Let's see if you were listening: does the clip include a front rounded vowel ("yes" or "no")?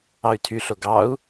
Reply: yes